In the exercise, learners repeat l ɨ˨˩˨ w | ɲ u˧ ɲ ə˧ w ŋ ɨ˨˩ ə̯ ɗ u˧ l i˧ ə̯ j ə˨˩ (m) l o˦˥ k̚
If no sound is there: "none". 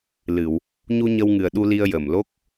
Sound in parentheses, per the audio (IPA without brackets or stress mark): m